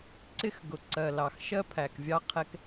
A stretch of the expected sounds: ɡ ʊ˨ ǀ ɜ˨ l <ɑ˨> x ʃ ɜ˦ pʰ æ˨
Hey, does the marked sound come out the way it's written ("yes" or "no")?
yes